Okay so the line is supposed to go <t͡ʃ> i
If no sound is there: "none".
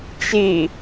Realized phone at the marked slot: t͡ʃ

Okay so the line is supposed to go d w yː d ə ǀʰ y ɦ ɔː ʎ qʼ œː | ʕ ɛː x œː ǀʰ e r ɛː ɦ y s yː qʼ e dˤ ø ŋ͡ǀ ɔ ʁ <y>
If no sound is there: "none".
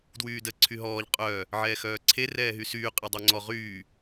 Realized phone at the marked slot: yː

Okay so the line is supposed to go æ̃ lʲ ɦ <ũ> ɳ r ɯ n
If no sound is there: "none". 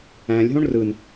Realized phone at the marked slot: õ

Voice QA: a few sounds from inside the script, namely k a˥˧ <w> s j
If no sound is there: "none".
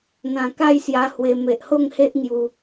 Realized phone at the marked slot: j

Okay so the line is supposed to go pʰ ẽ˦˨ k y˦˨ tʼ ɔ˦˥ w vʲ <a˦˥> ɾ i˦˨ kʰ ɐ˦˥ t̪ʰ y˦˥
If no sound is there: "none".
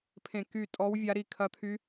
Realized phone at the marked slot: a˦˥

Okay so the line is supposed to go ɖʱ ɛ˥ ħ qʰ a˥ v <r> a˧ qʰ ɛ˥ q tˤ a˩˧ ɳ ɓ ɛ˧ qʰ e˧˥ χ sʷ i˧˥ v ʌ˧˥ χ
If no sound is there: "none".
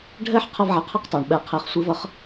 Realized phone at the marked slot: ʕ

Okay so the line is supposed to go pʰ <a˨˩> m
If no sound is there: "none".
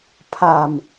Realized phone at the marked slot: a˨˩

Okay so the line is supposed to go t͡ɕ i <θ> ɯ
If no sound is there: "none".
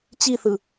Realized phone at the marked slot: θ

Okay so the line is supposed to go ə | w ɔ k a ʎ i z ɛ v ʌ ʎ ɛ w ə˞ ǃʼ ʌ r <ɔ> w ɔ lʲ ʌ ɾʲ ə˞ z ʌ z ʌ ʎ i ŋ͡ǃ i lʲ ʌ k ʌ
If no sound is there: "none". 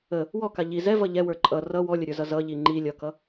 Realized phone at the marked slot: ʌ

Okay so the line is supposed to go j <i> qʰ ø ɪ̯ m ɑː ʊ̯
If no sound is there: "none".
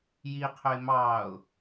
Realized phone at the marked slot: i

